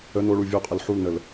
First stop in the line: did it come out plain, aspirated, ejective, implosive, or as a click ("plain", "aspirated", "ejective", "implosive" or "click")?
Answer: ejective